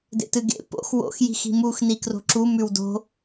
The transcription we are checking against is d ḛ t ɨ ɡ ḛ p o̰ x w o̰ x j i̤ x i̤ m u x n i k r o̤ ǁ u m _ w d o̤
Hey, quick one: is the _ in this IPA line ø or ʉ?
ʉ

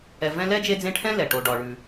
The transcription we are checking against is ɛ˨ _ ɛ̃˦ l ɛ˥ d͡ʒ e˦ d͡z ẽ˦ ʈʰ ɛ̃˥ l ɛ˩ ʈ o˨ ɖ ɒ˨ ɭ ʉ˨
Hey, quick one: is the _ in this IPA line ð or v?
v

